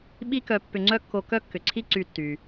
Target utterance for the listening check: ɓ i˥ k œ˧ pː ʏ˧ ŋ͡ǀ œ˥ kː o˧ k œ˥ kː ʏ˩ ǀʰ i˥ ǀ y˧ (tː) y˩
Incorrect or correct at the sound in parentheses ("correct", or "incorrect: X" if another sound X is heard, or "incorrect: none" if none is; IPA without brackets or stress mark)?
correct